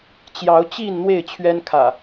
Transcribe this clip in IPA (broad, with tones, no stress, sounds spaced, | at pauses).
t͡ɕ j ɑ˨˦ ʊ̯ t͡ɕ i˥˨ n n̪ w e˥˨ ɪ̯ t͡ɕʰ ɥ ɛ˦ n kʰ ä̰˨˩